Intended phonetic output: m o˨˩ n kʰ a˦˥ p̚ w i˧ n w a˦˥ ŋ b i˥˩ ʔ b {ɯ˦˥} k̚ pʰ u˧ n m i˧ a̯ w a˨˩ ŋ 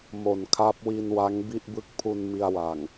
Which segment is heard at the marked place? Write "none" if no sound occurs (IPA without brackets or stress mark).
ɯ˦˥